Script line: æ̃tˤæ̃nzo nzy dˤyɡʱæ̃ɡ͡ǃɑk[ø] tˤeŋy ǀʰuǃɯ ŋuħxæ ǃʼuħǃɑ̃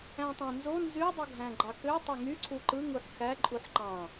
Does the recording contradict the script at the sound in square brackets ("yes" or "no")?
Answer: no